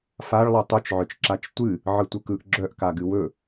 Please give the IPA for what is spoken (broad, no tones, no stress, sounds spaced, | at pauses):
f a ɭ lˠ œ tˤ ɵ t͡ʃ ʕ œ t͡ʃ ǁ a t͡ʃ tʷ ɨ | ʕ ɯ tʷ ɯ k ɯ ʔ ɡ͡ǁ œ ʔ k a ɡ ɨ w ɵ